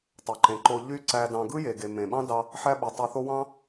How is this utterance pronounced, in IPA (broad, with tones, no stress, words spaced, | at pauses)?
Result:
tˤo˩ǃẽ˩ǃo˧ ʎy˥ ǀæ˧dɑ̃˧ ɡɯ˥je˩ɡe˩ mẽ˩ɓɑ̃˥dɑ˧ | ħæ˥ɓɯ˩tˤo˧θo˥ wɑ̃˥